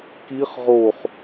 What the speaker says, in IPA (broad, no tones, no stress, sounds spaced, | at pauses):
k i χ ʁ o χ